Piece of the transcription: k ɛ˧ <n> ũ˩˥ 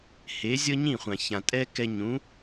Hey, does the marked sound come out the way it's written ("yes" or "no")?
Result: no